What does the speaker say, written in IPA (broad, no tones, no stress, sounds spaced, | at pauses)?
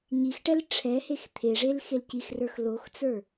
ɲ i x ʈ ɛ l ʈ͡ʂʰ ɛ h e x t̪ʰ e ʐ e l x e l c i x r ə˞ x l o x t͡s ə˞